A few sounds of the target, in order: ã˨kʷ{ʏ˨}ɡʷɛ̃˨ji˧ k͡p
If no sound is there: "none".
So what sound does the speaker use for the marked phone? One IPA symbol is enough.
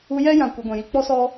ɨ˨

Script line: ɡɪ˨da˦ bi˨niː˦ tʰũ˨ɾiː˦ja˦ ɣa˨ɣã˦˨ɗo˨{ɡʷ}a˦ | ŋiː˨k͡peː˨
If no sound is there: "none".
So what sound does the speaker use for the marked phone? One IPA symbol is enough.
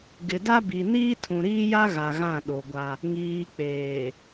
ɡʷ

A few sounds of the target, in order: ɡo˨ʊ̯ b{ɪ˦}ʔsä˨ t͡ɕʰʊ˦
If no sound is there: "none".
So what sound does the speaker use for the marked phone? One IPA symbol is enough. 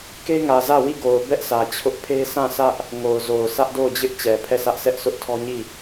ɛ˦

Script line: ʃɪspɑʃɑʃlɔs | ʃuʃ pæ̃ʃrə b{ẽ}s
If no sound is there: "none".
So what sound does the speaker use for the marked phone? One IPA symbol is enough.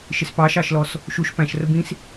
ĩ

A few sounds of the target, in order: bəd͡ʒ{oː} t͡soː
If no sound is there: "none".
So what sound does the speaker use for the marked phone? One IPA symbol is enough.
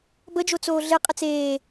o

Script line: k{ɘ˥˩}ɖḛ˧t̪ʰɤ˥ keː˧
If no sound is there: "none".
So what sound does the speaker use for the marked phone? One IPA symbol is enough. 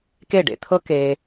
e˥˩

